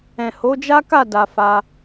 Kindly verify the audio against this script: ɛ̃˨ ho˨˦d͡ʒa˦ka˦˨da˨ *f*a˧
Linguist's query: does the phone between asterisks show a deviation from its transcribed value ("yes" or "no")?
no